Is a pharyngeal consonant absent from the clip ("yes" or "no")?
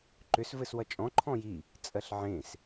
no